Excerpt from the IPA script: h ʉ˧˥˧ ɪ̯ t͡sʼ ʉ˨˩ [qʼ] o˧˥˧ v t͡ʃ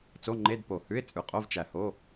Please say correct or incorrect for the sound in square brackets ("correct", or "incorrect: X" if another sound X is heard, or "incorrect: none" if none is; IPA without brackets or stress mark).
correct